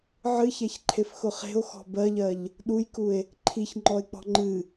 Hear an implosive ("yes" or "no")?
yes